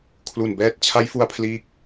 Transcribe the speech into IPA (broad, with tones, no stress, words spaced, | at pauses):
kʰlu˨˩nbɛː˦˥t̚ t͡ɕʰa˦˥jfu˧a̯pʰliː˦˥k̚